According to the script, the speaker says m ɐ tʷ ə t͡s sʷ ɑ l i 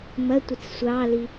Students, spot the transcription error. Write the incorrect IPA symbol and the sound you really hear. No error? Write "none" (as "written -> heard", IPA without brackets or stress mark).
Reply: none